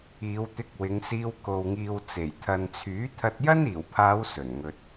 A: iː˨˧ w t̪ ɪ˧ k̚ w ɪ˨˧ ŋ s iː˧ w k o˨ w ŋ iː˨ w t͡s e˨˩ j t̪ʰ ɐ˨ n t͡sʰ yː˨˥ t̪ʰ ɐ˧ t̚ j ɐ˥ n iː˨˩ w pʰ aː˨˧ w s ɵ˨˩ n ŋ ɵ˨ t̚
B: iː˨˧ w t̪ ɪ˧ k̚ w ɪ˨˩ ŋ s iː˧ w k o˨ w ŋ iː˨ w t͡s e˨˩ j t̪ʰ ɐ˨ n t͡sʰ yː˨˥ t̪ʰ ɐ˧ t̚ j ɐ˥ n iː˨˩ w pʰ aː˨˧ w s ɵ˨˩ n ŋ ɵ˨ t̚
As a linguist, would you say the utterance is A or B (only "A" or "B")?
A